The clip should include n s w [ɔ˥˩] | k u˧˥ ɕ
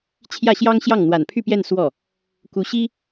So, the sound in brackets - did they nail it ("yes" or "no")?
yes